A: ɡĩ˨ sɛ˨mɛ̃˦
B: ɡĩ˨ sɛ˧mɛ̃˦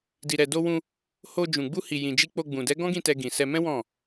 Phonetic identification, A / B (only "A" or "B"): B